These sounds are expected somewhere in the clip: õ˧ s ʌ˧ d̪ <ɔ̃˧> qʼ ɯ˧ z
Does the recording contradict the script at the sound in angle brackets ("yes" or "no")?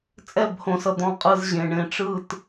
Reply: no